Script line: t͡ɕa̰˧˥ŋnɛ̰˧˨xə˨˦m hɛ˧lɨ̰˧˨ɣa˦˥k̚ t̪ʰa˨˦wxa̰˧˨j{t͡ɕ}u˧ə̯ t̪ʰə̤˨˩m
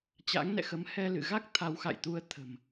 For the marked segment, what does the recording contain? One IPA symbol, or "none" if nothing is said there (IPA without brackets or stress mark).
t̪